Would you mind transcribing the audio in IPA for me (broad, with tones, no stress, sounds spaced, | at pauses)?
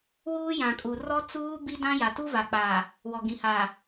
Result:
w uː˦ j ã˨ kʼ u˨ r ɔ˦ t͡s uː˦ b i˦ d ã˦ j a˨ t u˦ v a˨ k͡p aː˨ | w ɔ˨ ɡ ĩ˨ h aː˨